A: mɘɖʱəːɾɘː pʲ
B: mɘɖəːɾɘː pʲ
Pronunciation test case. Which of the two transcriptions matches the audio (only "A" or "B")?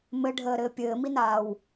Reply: A